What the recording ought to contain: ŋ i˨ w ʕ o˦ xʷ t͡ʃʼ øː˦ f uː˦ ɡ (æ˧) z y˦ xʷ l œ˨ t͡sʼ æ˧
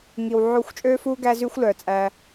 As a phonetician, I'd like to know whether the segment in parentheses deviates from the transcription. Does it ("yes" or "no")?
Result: yes